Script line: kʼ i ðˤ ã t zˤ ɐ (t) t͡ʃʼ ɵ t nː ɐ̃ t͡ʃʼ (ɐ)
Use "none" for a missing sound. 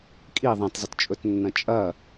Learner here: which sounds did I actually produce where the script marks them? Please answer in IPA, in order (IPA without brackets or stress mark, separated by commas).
t, ɐ